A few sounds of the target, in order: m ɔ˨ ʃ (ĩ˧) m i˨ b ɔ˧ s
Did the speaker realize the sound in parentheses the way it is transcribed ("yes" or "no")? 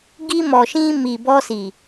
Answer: yes